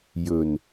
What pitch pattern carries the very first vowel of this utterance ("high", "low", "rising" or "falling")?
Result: low